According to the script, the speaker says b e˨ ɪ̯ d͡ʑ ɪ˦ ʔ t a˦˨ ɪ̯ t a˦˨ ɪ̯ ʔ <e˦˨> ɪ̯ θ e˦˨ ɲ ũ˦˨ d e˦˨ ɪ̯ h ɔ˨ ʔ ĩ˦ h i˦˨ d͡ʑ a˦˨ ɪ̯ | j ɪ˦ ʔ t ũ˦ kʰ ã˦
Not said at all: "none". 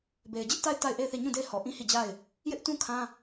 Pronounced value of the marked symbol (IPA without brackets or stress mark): e˦˨